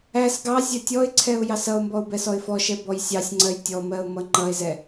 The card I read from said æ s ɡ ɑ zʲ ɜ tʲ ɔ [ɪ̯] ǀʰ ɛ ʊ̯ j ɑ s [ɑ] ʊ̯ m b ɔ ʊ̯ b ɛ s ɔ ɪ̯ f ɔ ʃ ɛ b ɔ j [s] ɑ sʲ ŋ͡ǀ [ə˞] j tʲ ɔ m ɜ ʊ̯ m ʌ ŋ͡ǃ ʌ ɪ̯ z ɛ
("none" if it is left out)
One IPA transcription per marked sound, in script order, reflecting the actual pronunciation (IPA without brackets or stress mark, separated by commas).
ɪ̯, ʌ, sʲ, ɜ